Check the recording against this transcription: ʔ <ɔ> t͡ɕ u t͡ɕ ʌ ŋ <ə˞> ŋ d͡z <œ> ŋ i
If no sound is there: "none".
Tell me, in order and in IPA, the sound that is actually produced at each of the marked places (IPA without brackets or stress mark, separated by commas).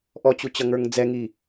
ɔ, ə˞, ɛ